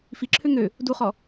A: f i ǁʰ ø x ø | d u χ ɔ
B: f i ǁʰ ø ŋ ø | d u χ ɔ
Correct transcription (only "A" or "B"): B